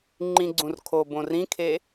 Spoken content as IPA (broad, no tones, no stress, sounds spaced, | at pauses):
ŋ͡ǃ ĩ ɡ͡ǀ ũ r kʰ o b õ r ĩ kʰ e